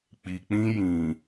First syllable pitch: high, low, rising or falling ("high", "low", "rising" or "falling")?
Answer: low